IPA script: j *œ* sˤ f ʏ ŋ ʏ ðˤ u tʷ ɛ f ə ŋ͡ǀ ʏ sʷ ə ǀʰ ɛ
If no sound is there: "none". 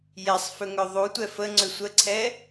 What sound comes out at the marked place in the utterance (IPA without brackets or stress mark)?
ɛ